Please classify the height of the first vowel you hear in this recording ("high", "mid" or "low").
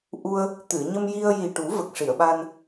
high